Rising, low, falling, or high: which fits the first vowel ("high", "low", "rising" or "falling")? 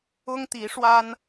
high